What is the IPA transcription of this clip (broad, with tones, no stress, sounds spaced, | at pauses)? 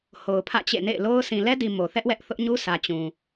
h o˨ ʊ̯ pʰ ä̰˦˨ t͡ɕ ḛ˦˨ n ḛ˦˨ ɪ̯ l o˦ ʊ̯ sʰ ĩ˨ l ɛ˦ d i˨ m o˨ θ ɛ˦ ʔ w ɛ˦ ʔ θ ʊ˦ ʔ ɲ u˦ s ä˨ t͡ɕ ũ˨